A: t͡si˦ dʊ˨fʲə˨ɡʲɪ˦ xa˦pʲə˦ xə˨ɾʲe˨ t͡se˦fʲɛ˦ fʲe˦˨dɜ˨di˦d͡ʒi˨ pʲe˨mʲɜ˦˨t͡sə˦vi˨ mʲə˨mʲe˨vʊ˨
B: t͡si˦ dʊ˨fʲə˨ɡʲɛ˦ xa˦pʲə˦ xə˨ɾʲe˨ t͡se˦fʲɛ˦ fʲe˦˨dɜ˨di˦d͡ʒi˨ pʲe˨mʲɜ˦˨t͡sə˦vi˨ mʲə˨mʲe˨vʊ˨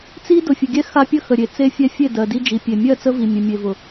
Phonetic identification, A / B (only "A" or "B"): B